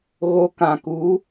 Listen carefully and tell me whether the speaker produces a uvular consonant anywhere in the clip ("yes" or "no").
no